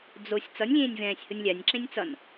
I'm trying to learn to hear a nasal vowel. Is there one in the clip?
yes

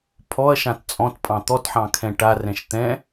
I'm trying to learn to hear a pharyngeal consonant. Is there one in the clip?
yes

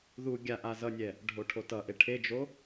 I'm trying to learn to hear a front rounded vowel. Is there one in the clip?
no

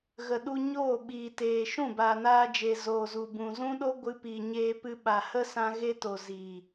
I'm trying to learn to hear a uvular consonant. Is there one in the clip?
no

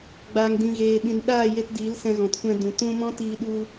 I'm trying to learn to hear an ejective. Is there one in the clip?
no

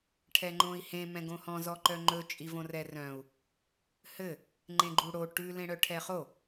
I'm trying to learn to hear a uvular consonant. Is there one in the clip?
yes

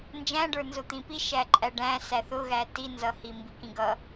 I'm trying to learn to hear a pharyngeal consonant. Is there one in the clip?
no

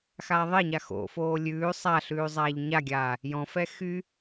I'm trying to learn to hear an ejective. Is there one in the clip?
no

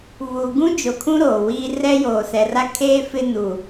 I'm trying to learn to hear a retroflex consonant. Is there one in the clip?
no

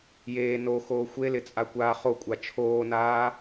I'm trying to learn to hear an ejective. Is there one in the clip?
yes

